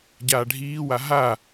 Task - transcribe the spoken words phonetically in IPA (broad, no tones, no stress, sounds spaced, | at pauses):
ɟ aː ɖʱ iː w a ɦ a